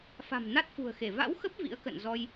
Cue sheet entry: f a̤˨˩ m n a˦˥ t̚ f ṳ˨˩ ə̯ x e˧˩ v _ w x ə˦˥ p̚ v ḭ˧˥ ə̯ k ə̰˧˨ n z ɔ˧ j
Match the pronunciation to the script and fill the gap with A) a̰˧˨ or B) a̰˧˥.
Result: B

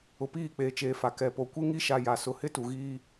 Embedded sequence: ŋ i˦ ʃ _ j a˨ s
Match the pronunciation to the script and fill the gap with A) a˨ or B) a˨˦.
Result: A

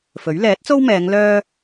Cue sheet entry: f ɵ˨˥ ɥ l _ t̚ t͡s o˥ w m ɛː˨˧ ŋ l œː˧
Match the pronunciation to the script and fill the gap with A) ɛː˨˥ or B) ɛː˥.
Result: A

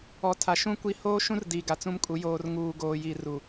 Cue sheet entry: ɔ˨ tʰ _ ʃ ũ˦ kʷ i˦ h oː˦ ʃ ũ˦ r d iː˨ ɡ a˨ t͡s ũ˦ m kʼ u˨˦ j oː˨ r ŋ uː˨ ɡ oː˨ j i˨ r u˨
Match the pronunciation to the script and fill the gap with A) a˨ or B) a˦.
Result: A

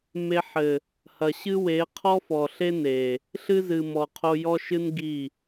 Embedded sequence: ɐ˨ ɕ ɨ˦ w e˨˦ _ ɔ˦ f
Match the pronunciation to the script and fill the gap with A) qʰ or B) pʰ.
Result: A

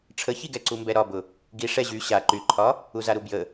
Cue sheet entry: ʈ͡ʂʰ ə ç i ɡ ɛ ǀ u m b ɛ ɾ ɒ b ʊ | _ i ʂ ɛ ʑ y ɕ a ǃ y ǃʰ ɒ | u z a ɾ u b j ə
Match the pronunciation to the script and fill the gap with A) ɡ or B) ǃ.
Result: A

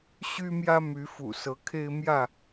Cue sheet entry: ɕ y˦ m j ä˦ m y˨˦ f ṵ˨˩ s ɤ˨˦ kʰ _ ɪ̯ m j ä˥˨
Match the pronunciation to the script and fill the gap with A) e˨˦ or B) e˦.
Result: B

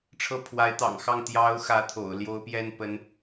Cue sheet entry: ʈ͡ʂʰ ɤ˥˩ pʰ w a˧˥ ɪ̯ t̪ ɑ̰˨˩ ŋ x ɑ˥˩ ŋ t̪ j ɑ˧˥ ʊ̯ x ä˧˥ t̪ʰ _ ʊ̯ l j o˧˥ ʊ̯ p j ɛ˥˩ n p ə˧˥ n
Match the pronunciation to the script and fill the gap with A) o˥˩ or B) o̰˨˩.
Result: B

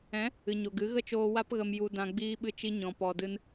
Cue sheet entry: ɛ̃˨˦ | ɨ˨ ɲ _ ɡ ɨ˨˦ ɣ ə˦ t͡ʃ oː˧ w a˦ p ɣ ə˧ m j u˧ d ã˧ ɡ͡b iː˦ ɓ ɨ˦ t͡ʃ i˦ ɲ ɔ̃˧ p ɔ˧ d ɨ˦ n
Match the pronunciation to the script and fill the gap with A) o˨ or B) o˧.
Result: A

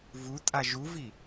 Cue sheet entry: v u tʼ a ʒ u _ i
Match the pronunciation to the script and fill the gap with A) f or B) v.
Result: B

